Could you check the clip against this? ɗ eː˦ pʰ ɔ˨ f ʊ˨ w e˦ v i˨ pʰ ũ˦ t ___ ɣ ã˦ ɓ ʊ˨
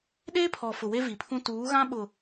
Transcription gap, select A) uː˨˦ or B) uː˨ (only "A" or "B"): A